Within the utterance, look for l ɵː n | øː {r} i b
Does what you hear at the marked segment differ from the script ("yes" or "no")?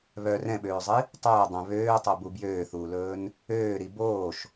yes